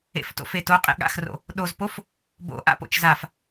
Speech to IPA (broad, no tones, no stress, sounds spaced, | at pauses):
ḛ f t o̰ f e t o qʼ ḛ ɠ a̰ x r o̰ | ɗ o z p o f | b o̰ ʔ a̰ p o̰ t͡ʃ z a f